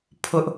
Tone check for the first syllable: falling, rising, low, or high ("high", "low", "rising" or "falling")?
high